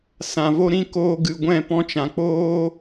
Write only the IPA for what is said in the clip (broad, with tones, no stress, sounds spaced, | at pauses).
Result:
s ã˨ v o˦ ɾ ĩ˦ k oː˧ ɡ ɨ˨ ɡʷ ɛ̃˦˨ p ɔ̃˧ t͡ʃ ã˨ k͡p oː˦